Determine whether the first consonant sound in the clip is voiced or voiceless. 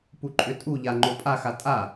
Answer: voiceless